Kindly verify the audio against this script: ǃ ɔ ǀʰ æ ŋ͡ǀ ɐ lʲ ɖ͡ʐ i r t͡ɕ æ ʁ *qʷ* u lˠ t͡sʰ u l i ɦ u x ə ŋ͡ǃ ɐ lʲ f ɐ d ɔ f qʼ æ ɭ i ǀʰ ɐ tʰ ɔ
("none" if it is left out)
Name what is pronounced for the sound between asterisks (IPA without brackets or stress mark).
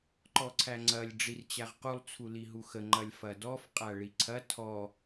q